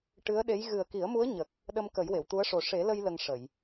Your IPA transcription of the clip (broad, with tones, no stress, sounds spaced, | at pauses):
ʈ ɨ˧˥ ə̯ ɗ e˧˥ j ɣ ɨ˨˩ ə̯ k i˨˩˦ ə̯ m u˧˥ ə̯ ɲ ə˨˩ k̚ | ɗ ə˧ m k ə˨˩˦ j w e˨˩˨ w t̪ u˧˥ ə̯ ʂ o˨˩ ʂ e˨˩˦ l ə˧ j l ə˧ ŋ ʂ ə˨˩˨ j